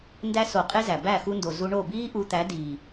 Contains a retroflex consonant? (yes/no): yes